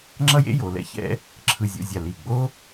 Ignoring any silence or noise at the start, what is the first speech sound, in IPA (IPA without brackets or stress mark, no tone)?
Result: ŋ͡ǁ